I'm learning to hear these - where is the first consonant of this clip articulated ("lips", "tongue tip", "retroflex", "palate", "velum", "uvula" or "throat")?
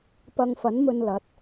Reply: lips